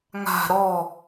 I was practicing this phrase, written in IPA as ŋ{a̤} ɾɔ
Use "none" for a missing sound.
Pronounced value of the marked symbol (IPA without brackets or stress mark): a̤